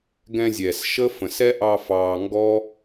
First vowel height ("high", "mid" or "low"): mid